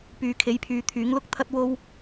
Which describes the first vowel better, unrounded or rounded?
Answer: rounded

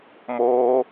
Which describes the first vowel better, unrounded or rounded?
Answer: rounded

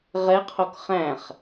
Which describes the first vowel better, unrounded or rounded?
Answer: unrounded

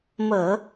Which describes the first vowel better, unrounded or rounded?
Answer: unrounded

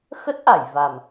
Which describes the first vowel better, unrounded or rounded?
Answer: unrounded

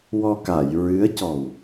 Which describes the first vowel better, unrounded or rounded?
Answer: rounded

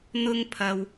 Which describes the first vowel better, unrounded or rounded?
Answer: rounded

